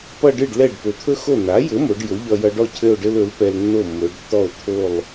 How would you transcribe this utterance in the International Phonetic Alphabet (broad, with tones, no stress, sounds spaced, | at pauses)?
p ʌ˥˧ ɖ ɨ˥˩ ɖ l ɛ˥˩ ɖ p ɵ˩˧ t̪ʰ ɵ˥ x o˥˩ n a˩˥ j ɘ˩˥ m o˩˧ ɖ j ɵ˩˥ ʎ ʌ˧ j ʌ˧ ɖ ɔ˥˩ cʰ ɘ˥˧ o̯ ɖ ɘ˥ l ɵ˩˥ l p ɛ˧ l nː o˥˩ mː ɵ˩˧ ɖ tː ɔ˥˩ o̯ t̪ʰ o˥˩ lˠ